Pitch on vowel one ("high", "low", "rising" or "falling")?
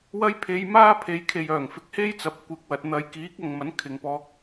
high